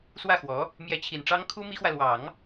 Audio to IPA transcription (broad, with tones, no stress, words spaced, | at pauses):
swä˥˩xwɔ˧˥ | mjɛ˧˥t͡ɕʰi˨˩nʈ͡ʂɑ˥ŋ kʰu˥ mi˥xwä˨ lwɑ˨˩˦ŋ